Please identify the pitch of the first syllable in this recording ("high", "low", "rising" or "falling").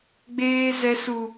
high